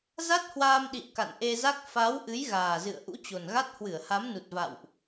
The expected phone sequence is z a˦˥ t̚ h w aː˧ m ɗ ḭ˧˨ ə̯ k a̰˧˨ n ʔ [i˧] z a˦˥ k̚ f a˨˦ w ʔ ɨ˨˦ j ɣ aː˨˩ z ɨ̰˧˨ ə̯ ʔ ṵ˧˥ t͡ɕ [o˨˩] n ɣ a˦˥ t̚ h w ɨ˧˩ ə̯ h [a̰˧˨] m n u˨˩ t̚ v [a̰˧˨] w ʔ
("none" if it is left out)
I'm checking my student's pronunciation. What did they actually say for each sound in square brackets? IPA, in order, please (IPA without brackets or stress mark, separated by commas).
e˧, o˨˩, a˨˦, a̰˧˨